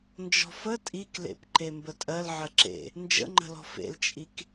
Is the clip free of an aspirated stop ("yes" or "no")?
yes